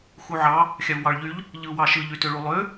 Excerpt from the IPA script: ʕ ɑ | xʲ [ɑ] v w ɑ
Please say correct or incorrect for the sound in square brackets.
correct